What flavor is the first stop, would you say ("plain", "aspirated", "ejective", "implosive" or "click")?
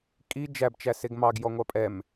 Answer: ejective